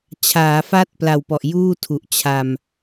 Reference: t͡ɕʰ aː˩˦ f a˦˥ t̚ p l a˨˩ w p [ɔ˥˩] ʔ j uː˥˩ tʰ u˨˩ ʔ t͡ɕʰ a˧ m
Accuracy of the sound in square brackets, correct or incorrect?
incorrect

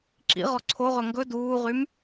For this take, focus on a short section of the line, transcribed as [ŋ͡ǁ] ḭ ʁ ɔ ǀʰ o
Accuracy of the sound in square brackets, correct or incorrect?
incorrect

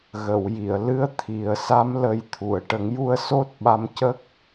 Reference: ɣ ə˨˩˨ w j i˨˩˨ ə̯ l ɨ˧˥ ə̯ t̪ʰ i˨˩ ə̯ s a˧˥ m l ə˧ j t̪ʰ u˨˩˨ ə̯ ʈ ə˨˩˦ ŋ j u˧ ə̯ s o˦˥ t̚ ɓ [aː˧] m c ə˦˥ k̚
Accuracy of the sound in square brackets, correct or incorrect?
incorrect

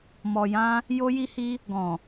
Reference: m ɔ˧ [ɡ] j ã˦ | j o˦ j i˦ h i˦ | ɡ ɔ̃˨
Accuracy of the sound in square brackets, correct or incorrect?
incorrect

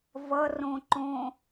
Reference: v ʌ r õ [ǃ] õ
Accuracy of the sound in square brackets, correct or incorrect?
correct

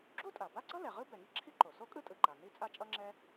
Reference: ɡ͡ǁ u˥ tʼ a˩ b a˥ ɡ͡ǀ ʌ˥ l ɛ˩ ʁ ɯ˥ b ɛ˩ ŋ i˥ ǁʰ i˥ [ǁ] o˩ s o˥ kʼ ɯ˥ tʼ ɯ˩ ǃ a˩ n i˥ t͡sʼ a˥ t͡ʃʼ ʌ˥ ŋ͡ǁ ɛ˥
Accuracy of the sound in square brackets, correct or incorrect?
incorrect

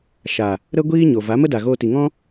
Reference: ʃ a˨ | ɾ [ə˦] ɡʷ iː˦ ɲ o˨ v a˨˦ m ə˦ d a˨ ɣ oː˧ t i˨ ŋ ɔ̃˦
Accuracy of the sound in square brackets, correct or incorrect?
correct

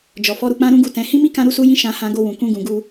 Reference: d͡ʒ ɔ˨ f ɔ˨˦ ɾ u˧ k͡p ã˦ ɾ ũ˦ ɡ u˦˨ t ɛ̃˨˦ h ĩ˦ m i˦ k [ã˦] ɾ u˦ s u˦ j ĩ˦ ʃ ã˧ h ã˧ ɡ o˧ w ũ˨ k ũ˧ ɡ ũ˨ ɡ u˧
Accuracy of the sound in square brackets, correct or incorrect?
correct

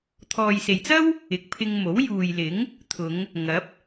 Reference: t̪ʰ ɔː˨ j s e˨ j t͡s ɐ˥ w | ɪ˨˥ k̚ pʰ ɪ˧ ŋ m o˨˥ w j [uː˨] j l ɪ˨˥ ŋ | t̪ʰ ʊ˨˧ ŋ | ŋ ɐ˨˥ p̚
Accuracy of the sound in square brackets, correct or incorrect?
correct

